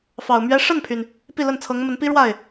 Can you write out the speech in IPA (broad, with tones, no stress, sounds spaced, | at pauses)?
f ɑ˨˩ ʊ̯ m ɥ ɛ˥ ʂ ə˥˩ n pʰ y˩ n | p i˥˧ l ə˥˩ n t͡sʰ ɤ˧˥ ŋ m ə˧˥ n p i˥ ɻ w a˥˩ ɪ̯